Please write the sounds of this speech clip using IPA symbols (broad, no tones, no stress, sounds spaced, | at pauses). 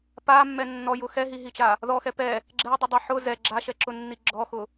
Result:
p a mː ɛ nː ɔ j ʊ x ɛ ɦ i ɦ i t͡ʃ a | ð ɔ x ɛ p ɛ | ɡ͡ǁ ɛ dˤ ʊ dˤ ɛ ħ ʊ z ɛ ɡ͡ǁ a ʃ ɛ ǁ ʊ nː i ɡ͡ǁ ɔ x ʊ